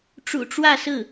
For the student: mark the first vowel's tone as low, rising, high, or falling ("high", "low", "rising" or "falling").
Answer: low